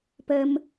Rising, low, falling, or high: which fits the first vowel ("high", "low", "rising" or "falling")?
high